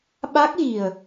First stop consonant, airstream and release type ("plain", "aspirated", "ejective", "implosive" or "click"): implosive